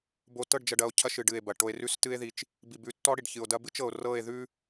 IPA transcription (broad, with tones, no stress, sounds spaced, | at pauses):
b o˨ t ɤ˦˨ ɖ d͡ʒ ɐ˨ ɖ ɐ˨ o̯ cʰ ɐ˦ ʃ ɨ˨ ɖ ɨ˦˨ e̯ b ɐ˨ ʈ o˨ e̯ r ʉ˦˨ s t ɨ˦ e̯ ð i˦ t͡ʃ | b i˨ b ʉ˨˦ tː ɔ˦ ɽ i˨ ɖ ç ɨ˨ o̯ d ɐ˦ b ɨ˦ t͡ʃ ɤ˨ o̯ r ɤ˦˨ e̯ ð ʉ˦